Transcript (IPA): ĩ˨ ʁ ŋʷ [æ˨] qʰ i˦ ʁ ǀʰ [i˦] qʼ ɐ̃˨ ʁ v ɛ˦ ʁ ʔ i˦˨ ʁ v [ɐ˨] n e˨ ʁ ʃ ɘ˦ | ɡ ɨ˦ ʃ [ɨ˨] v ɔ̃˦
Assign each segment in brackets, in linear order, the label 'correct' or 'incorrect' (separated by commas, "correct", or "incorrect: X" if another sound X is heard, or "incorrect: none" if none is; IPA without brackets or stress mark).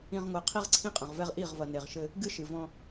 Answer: incorrect: a˨, incorrect: ĩ˦, correct, correct